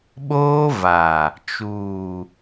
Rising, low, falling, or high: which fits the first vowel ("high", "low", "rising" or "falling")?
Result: high